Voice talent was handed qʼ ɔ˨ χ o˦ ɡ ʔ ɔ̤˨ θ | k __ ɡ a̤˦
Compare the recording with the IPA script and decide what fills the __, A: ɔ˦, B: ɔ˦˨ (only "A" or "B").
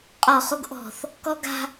A